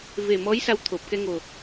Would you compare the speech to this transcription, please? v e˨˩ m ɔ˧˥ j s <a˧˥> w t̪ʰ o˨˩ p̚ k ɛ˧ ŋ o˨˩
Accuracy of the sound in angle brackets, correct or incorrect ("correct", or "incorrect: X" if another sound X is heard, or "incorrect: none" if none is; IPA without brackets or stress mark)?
incorrect: a˧